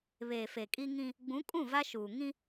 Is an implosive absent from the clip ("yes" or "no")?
yes